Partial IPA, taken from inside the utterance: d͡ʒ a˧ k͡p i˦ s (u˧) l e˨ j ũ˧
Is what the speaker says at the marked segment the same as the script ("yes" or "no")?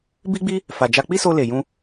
no